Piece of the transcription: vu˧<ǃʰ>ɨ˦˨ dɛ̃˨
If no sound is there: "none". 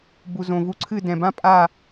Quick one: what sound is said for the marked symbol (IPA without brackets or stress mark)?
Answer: ǀʰ